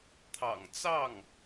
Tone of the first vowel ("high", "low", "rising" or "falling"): low